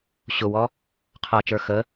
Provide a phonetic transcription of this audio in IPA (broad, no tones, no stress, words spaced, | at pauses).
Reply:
ɕʊwɔ | qʰʌt͡ʃə˞ xə